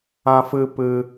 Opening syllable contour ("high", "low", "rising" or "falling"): high